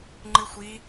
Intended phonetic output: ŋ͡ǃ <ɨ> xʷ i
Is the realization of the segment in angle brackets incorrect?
no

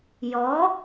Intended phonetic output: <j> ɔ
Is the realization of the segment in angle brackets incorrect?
no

